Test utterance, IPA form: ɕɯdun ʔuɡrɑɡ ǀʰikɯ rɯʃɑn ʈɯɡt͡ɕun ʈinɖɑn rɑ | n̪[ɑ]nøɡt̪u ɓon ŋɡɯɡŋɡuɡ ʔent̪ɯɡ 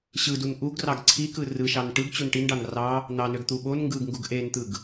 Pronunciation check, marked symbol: correct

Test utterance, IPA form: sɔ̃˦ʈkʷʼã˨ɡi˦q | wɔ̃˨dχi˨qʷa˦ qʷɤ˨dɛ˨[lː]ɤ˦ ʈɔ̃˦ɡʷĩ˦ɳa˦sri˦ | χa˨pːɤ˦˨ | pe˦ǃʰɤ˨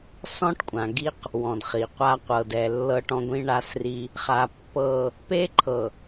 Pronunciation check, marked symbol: correct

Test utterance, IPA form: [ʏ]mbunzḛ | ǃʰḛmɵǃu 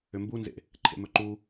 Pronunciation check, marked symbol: correct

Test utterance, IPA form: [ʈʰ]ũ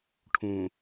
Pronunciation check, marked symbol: correct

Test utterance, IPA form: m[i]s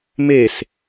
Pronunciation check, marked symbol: incorrect: e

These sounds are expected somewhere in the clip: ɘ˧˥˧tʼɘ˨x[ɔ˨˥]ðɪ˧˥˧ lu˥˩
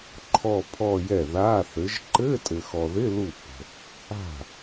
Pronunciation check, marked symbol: incorrect: ɔ˨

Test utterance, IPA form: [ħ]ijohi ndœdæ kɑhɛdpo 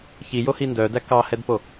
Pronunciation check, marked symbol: incorrect: ç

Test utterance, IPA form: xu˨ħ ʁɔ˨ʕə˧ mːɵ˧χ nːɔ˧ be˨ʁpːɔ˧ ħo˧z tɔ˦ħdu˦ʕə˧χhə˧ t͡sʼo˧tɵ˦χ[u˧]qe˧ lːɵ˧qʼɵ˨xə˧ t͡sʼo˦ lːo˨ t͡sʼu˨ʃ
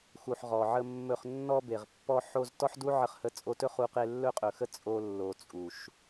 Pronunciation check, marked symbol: correct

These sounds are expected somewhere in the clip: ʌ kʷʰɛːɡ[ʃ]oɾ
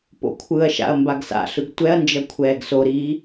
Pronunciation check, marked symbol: incorrect: s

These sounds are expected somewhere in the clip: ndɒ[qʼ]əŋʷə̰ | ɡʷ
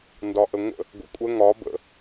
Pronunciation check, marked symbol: incorrect: ʔ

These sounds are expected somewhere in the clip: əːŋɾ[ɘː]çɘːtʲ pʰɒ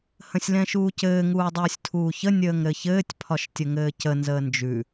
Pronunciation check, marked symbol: incorrect: ɘ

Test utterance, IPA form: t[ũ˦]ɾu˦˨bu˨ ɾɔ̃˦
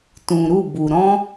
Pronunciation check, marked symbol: incorrect: ũ˨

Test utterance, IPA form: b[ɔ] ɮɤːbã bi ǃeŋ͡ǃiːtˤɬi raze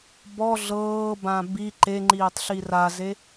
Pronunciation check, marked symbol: correct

